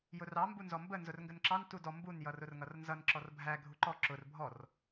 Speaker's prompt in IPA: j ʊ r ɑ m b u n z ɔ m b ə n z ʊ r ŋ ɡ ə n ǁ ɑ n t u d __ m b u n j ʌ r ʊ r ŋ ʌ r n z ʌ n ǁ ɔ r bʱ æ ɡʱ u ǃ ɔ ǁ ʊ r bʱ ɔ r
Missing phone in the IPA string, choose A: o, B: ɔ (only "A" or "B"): B